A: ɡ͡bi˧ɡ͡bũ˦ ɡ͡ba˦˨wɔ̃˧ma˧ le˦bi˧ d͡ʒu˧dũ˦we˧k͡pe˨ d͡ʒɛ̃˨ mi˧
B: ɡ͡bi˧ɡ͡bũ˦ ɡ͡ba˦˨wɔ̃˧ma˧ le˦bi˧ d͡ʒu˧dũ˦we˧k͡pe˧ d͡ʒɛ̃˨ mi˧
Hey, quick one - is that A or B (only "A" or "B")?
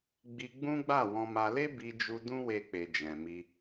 A